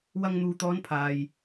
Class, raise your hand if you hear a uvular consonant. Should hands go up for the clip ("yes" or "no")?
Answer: no